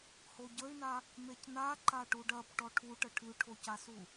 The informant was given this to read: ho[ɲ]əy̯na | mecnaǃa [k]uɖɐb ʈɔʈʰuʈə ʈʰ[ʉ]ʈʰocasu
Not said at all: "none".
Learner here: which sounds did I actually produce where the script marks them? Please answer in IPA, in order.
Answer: ɟ, ʈ, ʉ

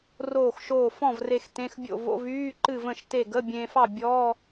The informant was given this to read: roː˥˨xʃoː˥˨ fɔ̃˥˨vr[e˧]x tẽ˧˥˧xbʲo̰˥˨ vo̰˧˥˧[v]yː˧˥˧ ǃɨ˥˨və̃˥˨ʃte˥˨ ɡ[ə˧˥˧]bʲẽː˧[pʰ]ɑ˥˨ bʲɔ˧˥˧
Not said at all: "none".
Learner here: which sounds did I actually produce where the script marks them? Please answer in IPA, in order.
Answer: e˧, v, ə˧˥˧, f

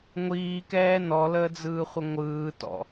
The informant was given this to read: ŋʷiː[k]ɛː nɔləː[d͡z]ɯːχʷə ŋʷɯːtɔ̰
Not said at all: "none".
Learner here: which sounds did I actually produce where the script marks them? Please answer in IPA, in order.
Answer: k, d͡z

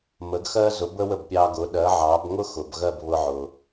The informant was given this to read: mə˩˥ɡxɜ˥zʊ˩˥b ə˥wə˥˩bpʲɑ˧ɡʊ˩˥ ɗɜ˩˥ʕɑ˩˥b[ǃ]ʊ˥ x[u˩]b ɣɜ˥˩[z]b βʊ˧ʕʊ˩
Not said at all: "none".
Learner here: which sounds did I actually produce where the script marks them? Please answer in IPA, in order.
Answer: ŋ, ʊ˩, none

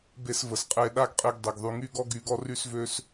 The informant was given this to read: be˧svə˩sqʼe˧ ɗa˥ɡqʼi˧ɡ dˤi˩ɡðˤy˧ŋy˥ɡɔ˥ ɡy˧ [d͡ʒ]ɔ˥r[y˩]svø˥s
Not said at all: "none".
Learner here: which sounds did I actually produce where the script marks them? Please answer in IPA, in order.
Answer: ɡ, y˥

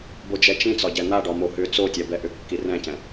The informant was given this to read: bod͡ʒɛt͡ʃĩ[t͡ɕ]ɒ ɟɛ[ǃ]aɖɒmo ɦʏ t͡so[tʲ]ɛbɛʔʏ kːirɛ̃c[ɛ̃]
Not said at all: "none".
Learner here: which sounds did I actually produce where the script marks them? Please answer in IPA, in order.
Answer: t͡s, n̪, tʲ, ɛ̃

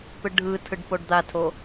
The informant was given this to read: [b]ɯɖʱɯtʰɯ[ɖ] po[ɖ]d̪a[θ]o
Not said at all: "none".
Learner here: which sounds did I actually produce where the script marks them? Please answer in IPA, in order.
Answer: p, ɖ, ɖ, tʰ

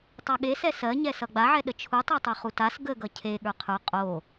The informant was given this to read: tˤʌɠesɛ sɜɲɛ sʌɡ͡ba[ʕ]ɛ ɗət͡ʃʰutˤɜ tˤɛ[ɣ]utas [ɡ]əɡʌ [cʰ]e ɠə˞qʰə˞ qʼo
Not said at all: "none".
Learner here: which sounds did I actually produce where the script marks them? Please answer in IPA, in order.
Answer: ʕ, χ, ɡ, cʰ

